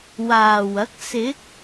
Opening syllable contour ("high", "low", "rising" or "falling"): low